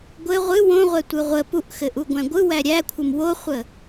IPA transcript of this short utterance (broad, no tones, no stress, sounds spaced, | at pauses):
ɡʷ ɘ ʁʷ ɨ w õ ʁʷ ɛ tʷ ɯ ʁʷ ə p u ʔ x ɘ ʔ u ɡʷ æ̃ ɡʷ ɯ w æ ɾʲ æ kʷʰ ɘ m w o χʷ ə